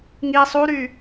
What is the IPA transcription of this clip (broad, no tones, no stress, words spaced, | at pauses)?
ŋi sˤuɾy